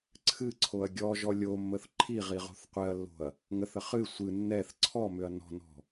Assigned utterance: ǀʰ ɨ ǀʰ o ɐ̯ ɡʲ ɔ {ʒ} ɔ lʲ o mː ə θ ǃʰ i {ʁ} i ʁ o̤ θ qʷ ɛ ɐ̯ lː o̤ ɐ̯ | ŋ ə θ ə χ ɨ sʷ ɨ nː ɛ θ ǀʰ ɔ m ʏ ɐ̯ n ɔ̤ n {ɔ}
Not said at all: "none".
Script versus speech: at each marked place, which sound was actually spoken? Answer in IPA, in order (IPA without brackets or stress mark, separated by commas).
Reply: ʒ, ʁ, ɔ̤